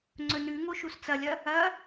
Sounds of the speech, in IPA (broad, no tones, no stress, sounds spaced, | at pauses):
ŋ͡ǀ ɵ n ʉ ŋ o ʃ u s t͡s ɐ lʲ ɐ | ɐ